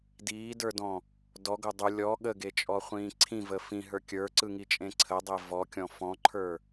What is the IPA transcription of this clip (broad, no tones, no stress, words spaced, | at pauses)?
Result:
diːdə˞dɔ̃ | dɔɡo dˤu lʲɔ ɠəɡet͡ʃʼɔχʷĩː ǀʰĩvə fĩɦə˞ kʲə˞ǀɯŋit͡ʃʼẽ ǀʰədˤe vɔkʲɔ̃ fɔ̃ǃʰə˞